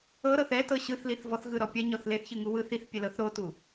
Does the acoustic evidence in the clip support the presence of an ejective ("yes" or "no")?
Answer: no